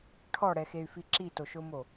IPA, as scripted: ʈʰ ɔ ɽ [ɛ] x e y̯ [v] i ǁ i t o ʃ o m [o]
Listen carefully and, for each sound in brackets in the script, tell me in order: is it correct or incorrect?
correct, incorrect: f, correct

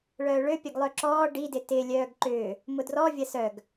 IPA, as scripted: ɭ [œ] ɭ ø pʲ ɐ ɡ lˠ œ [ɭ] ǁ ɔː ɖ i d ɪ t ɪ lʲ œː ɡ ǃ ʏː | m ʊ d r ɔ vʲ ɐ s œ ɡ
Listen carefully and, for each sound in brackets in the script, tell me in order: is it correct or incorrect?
incorrect: œː, incorrect: none

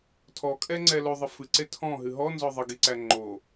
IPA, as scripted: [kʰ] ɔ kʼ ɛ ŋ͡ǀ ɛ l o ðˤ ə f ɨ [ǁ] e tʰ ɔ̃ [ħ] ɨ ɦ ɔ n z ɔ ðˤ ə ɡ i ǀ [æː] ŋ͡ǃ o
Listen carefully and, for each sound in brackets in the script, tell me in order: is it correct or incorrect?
incorrect: tʰ, incorrect: ǀ, incorrect: ɦ, incorrect: æ

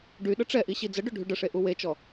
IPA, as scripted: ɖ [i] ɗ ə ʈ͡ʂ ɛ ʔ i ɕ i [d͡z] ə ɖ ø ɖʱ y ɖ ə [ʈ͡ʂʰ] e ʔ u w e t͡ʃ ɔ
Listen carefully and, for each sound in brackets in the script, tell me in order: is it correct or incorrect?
incorrect: y, correct, incorrect: ʂ

